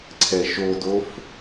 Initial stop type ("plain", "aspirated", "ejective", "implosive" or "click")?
click